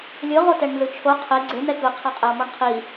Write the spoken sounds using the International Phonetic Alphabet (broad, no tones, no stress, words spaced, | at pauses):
lʲɯ ʁotɛɳnzɯt͡ʃʰo qʰe ɡ͡ǀe n̪ɛkɯ qʰaqʼɛo̯mɔɳqʰi